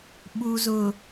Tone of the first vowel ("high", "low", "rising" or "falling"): low